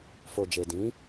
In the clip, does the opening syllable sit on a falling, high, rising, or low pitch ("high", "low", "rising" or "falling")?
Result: low